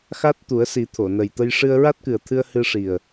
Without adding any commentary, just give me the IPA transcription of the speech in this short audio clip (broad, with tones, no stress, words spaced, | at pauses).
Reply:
xa˦˥t̚t̪u˨˩˦ə̯si˨˩˦ t̪ʰo˨˩˨nə˨˩jt̪ə˧j ʂɨ˧ə̯ɹa˦˥t̚kɨ˨˩ə̯t̪ʰɨ˧ə̯ hɨ˧ʂi˨˩ə̯